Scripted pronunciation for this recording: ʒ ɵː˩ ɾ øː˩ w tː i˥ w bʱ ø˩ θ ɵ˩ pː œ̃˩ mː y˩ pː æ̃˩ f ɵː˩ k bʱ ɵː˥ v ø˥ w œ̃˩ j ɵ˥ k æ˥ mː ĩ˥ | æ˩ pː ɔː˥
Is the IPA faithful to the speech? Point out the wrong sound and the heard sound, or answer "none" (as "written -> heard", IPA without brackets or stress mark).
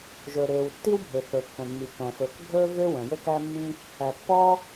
none